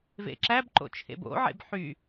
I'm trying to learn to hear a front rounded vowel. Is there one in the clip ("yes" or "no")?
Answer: yes